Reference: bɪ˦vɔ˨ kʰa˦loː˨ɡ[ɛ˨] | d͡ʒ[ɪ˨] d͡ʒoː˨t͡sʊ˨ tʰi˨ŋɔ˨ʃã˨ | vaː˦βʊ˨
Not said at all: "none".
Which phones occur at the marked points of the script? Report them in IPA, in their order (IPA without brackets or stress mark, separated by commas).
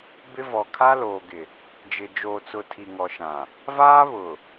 ɪ˨, ɪ˨